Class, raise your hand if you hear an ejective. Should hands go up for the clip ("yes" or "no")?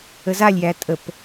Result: yes